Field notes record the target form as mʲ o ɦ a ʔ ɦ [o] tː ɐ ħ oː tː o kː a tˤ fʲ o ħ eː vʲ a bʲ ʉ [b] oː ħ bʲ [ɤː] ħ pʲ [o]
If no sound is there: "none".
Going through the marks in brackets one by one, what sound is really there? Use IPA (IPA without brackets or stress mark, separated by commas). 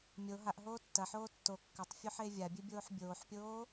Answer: oː, bʲ, oː, oː